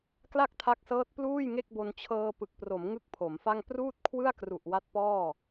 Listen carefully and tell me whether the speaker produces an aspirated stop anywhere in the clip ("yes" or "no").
yes